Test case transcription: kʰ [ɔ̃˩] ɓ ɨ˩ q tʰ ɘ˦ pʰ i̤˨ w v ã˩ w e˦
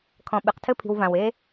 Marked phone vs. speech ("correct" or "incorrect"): correct